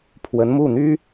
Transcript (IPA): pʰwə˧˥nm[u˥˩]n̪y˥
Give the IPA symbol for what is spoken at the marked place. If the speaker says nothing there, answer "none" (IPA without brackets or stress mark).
u˥˩